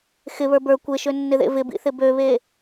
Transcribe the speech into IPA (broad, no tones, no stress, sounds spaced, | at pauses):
x ɪ β ə˞ b ə˞ kʷ e ʃ ø nː ɪ ð ḛ v ɪ b ḭ θ ɪ b ø β e